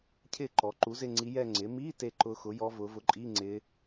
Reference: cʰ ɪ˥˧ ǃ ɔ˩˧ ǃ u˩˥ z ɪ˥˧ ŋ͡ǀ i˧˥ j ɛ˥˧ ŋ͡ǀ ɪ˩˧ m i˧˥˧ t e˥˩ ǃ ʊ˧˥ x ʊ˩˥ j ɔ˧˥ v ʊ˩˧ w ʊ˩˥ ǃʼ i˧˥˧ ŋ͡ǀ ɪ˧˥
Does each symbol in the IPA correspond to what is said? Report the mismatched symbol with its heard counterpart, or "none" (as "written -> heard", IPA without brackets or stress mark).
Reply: w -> v